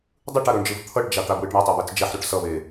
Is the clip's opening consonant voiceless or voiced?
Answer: voiced